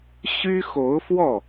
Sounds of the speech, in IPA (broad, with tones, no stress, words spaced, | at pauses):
ɕy˥xo˧˥ʊ̯fwɔ˥˩